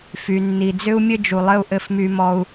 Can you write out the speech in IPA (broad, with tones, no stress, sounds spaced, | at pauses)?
f y˨ nː i˨ d͡z ʏ˦ u̯ mʲ ɘ˦ d͡ʒ u˨ lˠ ɘ˦ u̯ ʔ ɘ˦ f m y˦ m ɔ˦ u̯